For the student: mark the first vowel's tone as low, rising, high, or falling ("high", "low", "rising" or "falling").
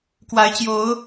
rising